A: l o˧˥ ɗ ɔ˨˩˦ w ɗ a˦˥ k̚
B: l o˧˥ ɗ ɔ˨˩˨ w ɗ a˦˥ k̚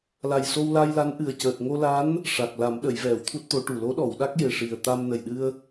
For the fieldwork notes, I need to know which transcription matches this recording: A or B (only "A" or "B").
B